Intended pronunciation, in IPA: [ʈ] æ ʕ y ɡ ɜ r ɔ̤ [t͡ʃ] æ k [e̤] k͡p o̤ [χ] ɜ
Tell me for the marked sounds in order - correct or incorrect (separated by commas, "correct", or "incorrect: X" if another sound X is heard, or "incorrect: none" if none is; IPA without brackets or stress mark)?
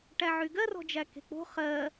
correct, incorrect: d͡ʒ, correct, correct